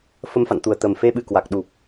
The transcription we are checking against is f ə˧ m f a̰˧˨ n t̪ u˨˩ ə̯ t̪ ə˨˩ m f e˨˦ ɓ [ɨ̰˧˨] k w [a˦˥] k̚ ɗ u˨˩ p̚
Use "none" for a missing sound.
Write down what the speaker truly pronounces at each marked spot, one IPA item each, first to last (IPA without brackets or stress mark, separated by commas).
ɨ˧˩, a˨˩